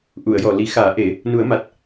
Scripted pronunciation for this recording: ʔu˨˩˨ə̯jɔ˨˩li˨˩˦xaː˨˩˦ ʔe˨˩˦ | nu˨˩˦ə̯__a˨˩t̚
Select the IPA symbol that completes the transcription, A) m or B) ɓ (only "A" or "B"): A